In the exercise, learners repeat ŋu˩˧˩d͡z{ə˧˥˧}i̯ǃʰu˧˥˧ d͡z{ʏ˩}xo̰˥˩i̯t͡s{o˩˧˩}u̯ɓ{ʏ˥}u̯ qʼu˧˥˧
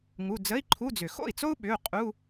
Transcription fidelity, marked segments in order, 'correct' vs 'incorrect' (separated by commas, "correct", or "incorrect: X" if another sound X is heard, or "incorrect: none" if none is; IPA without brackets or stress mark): correct, correct, incorrect: o˥, incorrect: ʏ˩˧˩